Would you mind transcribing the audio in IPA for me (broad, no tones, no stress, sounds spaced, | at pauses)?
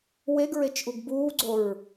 w e ɡ ɹ e t͡ʃ ʔ u ɡ b uː ɡ͡ǀ o ɹ